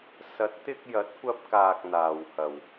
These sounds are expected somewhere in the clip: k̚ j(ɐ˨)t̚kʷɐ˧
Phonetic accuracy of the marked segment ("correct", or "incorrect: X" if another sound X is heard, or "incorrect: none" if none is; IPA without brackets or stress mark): incorrect: ɐ˨˥